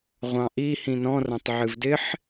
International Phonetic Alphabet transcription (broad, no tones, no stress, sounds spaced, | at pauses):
ʁʷ ɑ̃ ʔ i h ĩ n ɔ̃ r ɐ̃ tˤ ʕ ɨ v d ɪ ħ